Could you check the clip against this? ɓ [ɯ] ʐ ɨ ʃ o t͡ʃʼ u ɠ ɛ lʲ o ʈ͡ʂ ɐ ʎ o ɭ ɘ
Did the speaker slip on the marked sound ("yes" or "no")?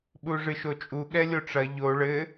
yes